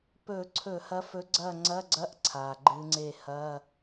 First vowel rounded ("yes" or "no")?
yes